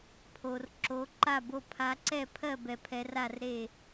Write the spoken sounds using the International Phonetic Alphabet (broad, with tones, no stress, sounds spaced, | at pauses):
pʰ o˨ r ǁ o˨˦ ǃ a˥˩ b o˥˩ pʰ a˨˦ ǀ ɛ˥˩ pʰ ɜ˥˩ b ɛ˨ pʰ ɛ˨˦ r a˥˩ r ɾ e˥˩